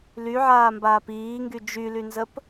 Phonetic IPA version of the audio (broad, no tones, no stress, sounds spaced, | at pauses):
l y ʕ aː m b aː p iː ŋ ɡ y d͡ʒ y l y n z ə p